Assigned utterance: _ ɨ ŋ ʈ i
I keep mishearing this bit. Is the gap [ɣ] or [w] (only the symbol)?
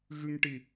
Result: ɣ